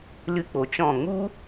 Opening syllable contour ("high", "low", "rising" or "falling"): high